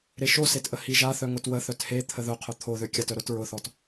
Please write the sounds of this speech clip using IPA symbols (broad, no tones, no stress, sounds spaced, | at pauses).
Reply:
ɾ e ʃ o s e t ʔ ə h i ʒ a θ œ ŋ ʊ t w ə θ œ t h e t̪ʰ ə ð ʊ qʰ ʊ t̪ʰ o ð ø kʲ a t œ ɾ ʊ t ɹ ʊ θ ɔ t